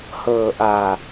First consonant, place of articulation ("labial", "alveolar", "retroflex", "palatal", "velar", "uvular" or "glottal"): glottal